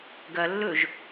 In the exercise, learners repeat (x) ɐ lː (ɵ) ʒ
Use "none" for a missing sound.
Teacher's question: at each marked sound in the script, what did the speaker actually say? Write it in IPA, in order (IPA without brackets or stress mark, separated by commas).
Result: ɡ, ɵ